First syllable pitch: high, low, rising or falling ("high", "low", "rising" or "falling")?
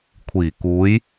low